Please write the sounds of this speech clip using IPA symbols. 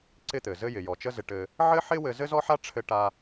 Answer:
ǀɪ˥t̪ɘ˩zɘ˥ jɪ˩jɔ˩ t͡ʃə˥zɪ˧ʈɘ˧ | ʕɘ˥ħɪ˥wɘ˧ zɘ˥zɔ˥ħa˥ ʈ͡ʂʰɘ˧ʈa˧

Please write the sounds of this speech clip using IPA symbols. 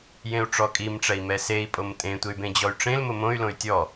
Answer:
jẽu̯ʈ͡ʂɔkʼimʈ͡ʂɛi̯ mɛsei̯pʼom tʼẽtʷey̯ bẽd͡ʑɔy̯ʈ͡ʂẽlmʊ mõy̯lõy̯ tʲɔ

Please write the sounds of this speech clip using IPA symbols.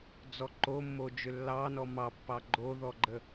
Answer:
d͡zɔǃomːo d͡ʒʏlːɑnɔ mɑpːɑ ɡ͡ǃoðɔɡ͡ǃə

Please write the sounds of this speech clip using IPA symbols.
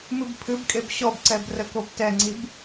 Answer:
mɨbpʰɨbkʼeb ɕɔbǀɛb rəkobtɛŋ͡ǀib

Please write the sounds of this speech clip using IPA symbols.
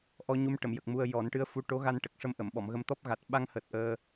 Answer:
ʔɔ˧ɲu˧m ʈə˨˩˨mjə˨˩k̚ mu˧ə̯jɔ˨˩˦n ʈɨ˧˥ə̯fu˧˥ʈo˧˥ ɣa˧nʈə˨˩k̚ʂə˧mʔə˨˩˨m ɓɔ˨˩˨mɣə˧m t̪ɔ˦˥p̚ɣa˨˩t̚ ɓa˧ŋhəː˨˩t̚ ʔəː˧

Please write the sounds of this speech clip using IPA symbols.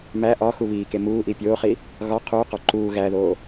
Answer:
mæ ʔɒ xuβiːke muːʔi pʲoːχi | ɣɒ qʰuːqɒ ǃuː ɣæðoː

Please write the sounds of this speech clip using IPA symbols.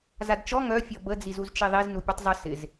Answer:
zadt͡ʃɔ ŋœ fʲɔbə d͡zizuzt͡ʃiðˤiz nupʲutˤzˤə sɪz

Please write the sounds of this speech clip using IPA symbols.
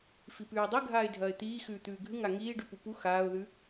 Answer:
fipʉːdˤɨ ɡʱaːɪ̯dʱɐːɪ̯t̪iː xʉːt̪ʉːɡʱɨ ŋaŋiː ɖʉpupu xaːʊ̯ðʉ

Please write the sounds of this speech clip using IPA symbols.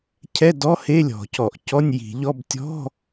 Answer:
cʰɛ˧˥˧dɔ˧˥˧he˧˥˧ lʲɔ̤˧˩˧cɔ˧˩˧ʔ cɔ˧˥˧nʲji̤˧˩˧ʎɔ˧˥˧b tʲɔ̤˧˥˧

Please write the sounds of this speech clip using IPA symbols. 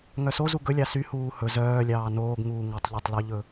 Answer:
ŋœsozu ɡɵlʲɑ sy huːhɵ zœːlʲɑː noːɡŋuː ŋɵtˤʎœtˤloʎɵ

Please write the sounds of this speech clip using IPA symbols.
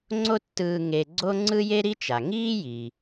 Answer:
ŋ͡ǀo˥tːɯː˧ ŋe˧ɡ͡ǀo˥ ŋ͡ǀɯ˥je˥ɾi˥ t͡ʃa˩ŋiː˥ ji˩

